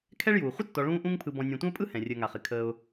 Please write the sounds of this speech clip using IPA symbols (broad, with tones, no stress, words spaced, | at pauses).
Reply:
kʰɛ˥ɭjuː˩ χʷə˥tːɔ˨ ɭũː˦ʔũ˦ŋpʰɯ˨ bɔ̃˨nʲɛ̃˨tʷə̃˥ʊ̯pʼɯ˥ hɛ̃˩rʲəː˨ŋa˩χɪ˩ kʰəː˨ʊ̯